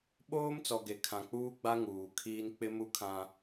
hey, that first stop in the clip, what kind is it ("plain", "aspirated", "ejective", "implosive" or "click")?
implosive